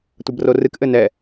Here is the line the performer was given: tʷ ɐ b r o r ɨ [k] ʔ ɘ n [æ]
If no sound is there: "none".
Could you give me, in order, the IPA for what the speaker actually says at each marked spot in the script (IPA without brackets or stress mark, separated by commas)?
k, ɛ